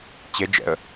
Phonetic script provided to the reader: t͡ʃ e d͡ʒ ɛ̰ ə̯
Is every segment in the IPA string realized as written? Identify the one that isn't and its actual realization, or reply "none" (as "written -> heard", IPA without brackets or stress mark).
t͡ʃ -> t͡ɕ